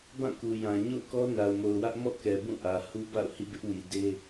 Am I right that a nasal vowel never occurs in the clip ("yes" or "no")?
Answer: no